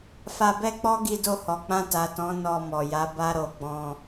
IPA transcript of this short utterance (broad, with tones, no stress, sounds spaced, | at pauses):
f a˧ b ɛ˦ k͡p ɔ˦ ɡ i˧ d o˧ h ɔ˨ k͡p ã˧ t a˨ t ɔ̃˨˦ n ɔ˧ m ɔ˨ j a˨˦ b a˦ ɾ o˧ ɡ͡b ɔ̃˧